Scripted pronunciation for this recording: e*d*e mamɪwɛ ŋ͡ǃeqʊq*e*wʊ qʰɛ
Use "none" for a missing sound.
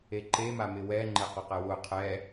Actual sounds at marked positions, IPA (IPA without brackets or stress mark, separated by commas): ǃ, ɛ